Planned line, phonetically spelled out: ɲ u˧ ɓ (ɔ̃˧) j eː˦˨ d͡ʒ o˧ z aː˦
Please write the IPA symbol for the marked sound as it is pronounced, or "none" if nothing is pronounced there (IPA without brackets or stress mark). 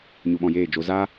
ɔ̃˧